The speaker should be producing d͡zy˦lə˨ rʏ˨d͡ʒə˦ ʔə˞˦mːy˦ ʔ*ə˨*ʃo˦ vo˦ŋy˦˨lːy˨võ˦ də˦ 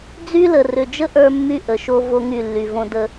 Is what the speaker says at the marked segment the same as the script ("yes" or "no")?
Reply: yes